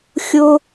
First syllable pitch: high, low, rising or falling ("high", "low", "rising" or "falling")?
high